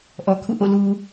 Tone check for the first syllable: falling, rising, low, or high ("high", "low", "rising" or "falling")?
low